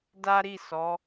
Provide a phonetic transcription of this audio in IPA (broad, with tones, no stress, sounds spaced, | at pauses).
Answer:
d a˦ ɾ i˦˨ s ɔ˨˦